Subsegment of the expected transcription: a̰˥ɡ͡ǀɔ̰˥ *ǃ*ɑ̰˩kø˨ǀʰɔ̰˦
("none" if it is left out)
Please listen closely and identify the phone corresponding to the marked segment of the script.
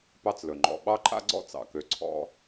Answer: t͡s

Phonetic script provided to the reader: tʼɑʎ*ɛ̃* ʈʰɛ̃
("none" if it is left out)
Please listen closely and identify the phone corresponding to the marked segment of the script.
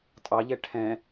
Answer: ɛ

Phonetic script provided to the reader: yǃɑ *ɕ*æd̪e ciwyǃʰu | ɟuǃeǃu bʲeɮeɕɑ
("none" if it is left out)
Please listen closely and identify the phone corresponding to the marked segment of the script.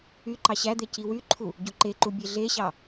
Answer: ɕ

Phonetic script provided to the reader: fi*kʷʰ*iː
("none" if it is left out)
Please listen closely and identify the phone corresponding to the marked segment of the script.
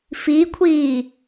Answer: kʷʰ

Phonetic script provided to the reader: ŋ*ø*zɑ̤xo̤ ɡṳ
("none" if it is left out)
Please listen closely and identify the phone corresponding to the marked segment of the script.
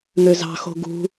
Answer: ø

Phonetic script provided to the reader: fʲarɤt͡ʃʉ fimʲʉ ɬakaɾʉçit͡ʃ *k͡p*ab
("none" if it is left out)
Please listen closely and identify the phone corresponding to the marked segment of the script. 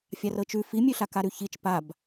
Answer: p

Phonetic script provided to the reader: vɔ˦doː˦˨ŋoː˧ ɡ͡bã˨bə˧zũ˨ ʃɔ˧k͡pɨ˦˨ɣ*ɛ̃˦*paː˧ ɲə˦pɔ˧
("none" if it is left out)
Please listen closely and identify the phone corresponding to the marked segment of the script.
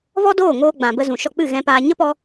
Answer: ɛ̃˧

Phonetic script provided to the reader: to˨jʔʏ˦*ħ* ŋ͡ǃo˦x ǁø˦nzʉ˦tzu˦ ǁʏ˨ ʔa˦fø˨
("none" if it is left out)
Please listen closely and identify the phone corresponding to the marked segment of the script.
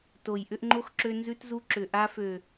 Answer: ʔ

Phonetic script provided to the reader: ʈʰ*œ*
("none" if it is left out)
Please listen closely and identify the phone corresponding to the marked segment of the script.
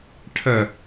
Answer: ə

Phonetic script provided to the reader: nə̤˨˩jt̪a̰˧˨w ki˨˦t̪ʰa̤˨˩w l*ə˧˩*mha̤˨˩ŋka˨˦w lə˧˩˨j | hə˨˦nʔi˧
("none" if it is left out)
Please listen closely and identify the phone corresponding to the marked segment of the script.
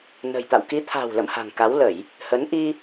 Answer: ə̰˧˨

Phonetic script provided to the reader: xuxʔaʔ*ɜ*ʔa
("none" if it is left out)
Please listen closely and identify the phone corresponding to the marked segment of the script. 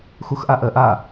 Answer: ɜ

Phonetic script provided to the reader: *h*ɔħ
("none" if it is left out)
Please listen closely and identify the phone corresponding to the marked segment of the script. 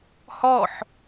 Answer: h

